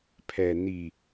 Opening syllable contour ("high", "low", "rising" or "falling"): low